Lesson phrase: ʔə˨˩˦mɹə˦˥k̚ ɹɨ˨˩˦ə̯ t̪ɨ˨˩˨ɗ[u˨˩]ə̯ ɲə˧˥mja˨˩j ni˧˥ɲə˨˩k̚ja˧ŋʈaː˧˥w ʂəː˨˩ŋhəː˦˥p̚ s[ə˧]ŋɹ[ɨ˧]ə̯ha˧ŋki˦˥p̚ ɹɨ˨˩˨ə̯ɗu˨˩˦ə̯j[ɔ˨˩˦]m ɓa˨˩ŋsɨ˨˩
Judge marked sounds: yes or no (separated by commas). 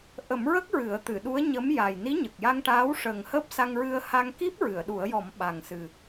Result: no, no, yes, yes